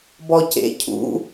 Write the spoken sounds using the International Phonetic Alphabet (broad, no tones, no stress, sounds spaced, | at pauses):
b ɔ c ḛ cʰ ṵ